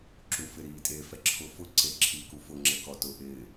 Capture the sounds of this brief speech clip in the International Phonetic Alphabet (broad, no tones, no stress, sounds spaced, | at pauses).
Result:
ǁ u f ɪ ɾ iː tʼ e f ɛ ǁʰ ʊ f ʊ ǀ e ǁʰ i k u f ʊ ŋ͡ǁ ɛ k ɔ t ʊ ʔ ɪː